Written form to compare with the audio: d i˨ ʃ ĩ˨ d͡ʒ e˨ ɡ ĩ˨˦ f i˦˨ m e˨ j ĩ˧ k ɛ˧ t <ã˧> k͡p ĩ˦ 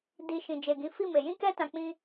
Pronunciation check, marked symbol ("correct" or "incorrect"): correct